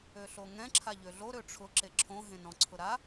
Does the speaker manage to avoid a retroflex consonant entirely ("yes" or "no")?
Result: no